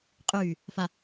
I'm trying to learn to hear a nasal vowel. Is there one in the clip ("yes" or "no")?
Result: no